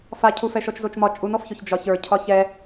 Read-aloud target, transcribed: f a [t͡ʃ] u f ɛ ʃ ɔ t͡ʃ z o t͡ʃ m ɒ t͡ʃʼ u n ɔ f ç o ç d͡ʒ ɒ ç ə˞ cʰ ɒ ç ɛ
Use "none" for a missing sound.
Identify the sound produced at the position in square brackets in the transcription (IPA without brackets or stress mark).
cʰ